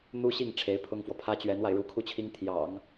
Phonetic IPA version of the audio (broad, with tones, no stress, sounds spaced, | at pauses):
n̪ u˥ ɕ i˥˩ ŋ ʈ͡ʂʰ e˧˥ ɪ̯ pʰ ʊ˥ ŋ f w ɔ˨ pʰ ä˥ t͡ɕ ɥ ɛ˧˥ n w a˧ ɪ̯ ɻ u˧˥ kʰ u˥˩ t͡ɕʰ i˥ ŋ t̪ʰ j ɑ̰˨˩˦ ŋ